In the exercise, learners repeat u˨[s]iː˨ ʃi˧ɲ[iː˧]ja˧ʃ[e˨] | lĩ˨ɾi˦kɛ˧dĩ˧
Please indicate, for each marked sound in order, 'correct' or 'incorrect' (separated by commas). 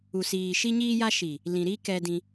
correct, correct, incorrect